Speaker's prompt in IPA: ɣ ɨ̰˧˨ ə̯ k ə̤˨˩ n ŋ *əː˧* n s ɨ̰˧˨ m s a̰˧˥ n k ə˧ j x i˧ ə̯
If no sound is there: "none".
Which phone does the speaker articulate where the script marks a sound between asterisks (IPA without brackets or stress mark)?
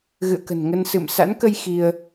ə˧